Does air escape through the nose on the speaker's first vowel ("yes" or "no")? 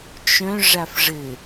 yes